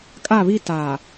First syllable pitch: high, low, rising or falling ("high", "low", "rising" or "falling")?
falling